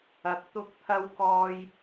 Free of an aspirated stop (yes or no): no